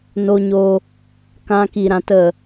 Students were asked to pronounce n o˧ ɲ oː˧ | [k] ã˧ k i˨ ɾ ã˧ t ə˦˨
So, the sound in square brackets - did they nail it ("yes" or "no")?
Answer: yes